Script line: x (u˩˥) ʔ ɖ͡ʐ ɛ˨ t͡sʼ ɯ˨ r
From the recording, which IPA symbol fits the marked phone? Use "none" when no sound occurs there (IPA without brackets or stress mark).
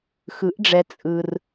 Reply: ɯ˩˥